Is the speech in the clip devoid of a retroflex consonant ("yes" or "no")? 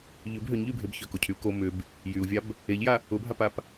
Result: yes